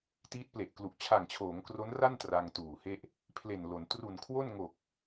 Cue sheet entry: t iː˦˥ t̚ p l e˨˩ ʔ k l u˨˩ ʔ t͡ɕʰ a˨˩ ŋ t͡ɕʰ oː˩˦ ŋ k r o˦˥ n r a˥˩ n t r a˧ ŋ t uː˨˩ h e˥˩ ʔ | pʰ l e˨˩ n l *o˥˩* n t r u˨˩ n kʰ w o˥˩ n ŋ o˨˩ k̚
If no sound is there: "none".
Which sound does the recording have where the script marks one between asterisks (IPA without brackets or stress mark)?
o˩˦